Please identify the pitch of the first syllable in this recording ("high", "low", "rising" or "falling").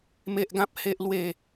high